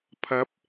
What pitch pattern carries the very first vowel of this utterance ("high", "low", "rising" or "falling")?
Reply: rising